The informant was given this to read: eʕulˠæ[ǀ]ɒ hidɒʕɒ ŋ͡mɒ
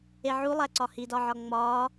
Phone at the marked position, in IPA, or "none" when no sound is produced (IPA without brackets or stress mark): ǀ